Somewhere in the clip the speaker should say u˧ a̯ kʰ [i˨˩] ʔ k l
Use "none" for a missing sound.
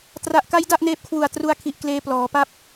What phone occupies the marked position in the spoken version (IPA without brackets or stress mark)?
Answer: i˨˩